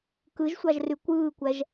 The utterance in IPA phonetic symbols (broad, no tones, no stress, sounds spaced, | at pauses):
k ɯ ʒ sʷ ɑ ʒ r y kʷ ɯː kʷ æ ʒ